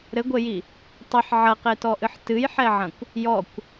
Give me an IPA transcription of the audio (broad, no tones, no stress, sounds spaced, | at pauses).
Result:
ɾ ɘ ɡʷ e j i | tˤ ɘ ħ ʕ ɐ q e t ɔ ʔ ɨ ħ t ɨ j ħ ɛ ʕ ɐ̃ kʷ | j ɔ kʷ